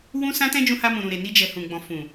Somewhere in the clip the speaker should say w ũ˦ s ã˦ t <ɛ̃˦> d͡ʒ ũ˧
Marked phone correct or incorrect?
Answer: correct